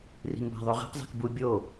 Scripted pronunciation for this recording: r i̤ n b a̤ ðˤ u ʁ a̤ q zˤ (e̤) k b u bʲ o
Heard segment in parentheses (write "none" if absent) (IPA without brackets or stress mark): e̤